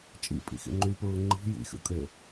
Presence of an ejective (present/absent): present